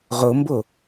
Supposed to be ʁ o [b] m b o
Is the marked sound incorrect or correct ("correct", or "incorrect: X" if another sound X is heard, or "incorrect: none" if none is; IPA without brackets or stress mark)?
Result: incorrect: none